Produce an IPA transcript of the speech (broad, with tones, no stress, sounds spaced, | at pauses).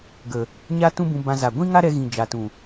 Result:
ɡ ə˨ | ɲ a˦ t ũ˦ b ũ˧ b ã˧ z a˨ ɡʷ ĩ˦ ŋ a˦ ɾ ɛ˧ ɣ ĩ˨ d͡ʒ a˨ t ũ˨